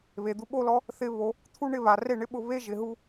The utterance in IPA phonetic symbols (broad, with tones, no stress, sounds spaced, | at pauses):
β e˨ d̪ u˧ ɓ o˦ l ɔ˦ | θ ɪ˧ β o˧ | t̪ʰ u˦ ɳ ɪ˦˨ β a˨ r e˦˨ ɳ ɪ˦ ɓ ʊ˧ β e˦ ʒ ɪ˨ ɦ u˧